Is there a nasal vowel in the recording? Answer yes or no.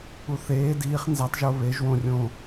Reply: yes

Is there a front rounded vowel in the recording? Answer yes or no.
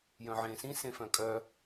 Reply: yes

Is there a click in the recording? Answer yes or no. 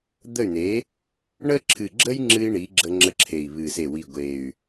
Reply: yes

